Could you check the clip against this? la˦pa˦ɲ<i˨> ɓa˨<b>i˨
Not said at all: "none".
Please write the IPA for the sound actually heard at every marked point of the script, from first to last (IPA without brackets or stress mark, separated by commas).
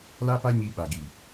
i˧, ɡ